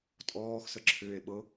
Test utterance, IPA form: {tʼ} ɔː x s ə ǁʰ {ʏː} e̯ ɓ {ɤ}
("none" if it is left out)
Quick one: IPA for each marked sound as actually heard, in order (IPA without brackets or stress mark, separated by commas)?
tʼ, ʏː, ɤ